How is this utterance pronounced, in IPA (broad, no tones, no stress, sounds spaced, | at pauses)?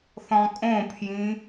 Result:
θ ɔ̃ kʼ õ pʰ j ĩ